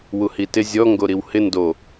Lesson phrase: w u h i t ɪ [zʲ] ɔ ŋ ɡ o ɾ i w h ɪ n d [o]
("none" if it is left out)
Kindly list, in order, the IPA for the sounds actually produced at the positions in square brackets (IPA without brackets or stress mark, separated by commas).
zʲ, o